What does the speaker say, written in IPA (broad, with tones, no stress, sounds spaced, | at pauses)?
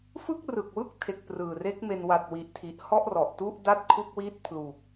f ɯ˥˩ k̚ r ɯ˨˩ k̚ w ɯ˥˩ k̚ tʰ e˨˩ k̚ p r ɯː˨˩ r e˦˥ k̚ m e˧ n w a˨˩ t̚ w i˨˩ ʔ tʰ i˨˩ ʔ h ɔ˥˩ ʔ r ɔ˨˩ ʔ t u˥˩ ʔ d a˥˩ t̚ kʰ u˥˩ k̚ w i˥˩ t̚ pʰ l u˨˩ k̚